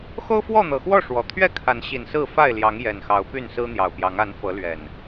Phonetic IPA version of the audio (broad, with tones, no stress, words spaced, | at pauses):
xo˦ʊ̯fwɔ˥˨n̪ɤ˨˩xwɔ˥˨ ʂwɔ˨˩ t̪ʰɥɛ˥˨kʰa˨˦n ɕi˨˩nsɹ̩˥˨ fa˥˨ɪ̯ljɑ˨˦ŋ jɛ˨˩nxɑ˨˦ʊ̯ py˥˨nsɹ̩˦n̪jɑ˨˩ʊ̯pjɑ˨˦ŋ a˨˦n fɤ˨˦lɥɛ˨˩n